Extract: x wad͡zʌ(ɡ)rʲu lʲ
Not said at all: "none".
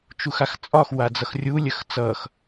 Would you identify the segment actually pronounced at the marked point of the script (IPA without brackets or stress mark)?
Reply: x